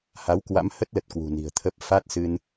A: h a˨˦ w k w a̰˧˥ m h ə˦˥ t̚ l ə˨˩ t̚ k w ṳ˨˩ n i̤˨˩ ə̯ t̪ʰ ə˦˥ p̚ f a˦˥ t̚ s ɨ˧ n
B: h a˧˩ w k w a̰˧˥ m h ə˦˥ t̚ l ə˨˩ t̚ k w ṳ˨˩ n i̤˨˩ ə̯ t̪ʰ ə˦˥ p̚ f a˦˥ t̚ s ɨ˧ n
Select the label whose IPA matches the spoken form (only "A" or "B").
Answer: A